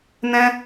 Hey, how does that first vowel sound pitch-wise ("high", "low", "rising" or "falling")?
high